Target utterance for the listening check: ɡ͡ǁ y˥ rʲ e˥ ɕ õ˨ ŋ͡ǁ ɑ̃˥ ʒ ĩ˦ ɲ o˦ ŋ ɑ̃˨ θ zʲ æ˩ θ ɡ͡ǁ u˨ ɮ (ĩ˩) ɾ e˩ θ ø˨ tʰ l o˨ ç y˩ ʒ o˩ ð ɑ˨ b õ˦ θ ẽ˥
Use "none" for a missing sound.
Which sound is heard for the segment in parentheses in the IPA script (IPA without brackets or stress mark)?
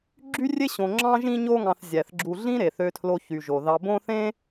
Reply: ĩ˥